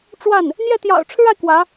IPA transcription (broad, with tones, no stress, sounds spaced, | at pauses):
ʈ͡ʂ w a˥˩ n | n̪ j ɛ˥˩ t̪ j ɑ̰˨˩ ʊ̯ ʈ͡ʂʰ ɻ̩˥ a˨ ɪ̯ k w ä˧˥